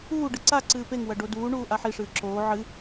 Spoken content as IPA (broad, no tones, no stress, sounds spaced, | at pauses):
uː ɖ ɨ ǀ a ǀ ɨː p e ŋ w ɐ ɖ o d uː ɳ uː ʔ a ħ i ʂ ɨː ǁ oː ʕ ɨ